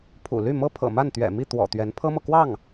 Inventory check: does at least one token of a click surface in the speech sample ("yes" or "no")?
no